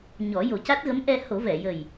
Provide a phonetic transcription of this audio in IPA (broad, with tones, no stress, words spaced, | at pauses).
ɲɔ˨˩˦ jo˨˩ca˦˥t̚ɣə˧˥m ʔɛ˧ ho˨˩˦vɛ˨˩˨jə˨˩j